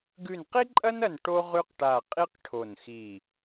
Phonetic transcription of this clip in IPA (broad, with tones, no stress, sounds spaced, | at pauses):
ɡ ʉ˦˨ n q i˥ ǃʼ ɐ˥ n ɐ˦˨ n ʈ o˥ ʁ ʉ˥ q ʈ a˦˨ qʼ i˥ q ʈʰ o˦˨ n x i˦˨